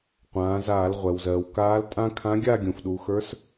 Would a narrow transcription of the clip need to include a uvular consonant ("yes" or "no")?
yes